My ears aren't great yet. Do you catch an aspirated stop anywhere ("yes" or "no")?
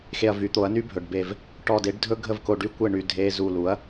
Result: no